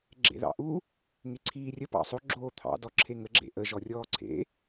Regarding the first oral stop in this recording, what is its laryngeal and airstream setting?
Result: click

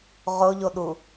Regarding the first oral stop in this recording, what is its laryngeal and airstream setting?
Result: implosive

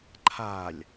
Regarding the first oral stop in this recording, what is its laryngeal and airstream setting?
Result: click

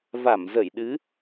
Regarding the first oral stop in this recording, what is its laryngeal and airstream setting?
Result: implosive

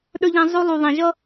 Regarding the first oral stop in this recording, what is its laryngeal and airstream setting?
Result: implosive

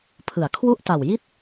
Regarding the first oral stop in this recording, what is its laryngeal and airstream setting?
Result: aspirated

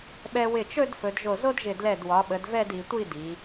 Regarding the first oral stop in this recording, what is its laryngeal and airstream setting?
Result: implosive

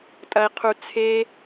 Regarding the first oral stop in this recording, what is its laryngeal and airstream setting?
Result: ejective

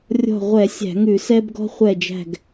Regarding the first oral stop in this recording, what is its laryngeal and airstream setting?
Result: plain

